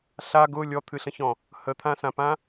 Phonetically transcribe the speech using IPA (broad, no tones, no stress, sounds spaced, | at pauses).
ɬ a ɡ ʊ lʲ ɔ t̪ʰ ɨ ɬ ə̃ ç ɔ̃ | h ə t̪ʰ ã s ã p ã